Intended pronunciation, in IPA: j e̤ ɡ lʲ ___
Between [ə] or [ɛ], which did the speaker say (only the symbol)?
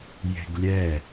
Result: ɛ